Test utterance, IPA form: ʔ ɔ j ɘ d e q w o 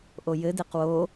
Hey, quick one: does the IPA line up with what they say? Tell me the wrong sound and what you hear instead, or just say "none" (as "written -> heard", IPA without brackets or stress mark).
ɔ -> o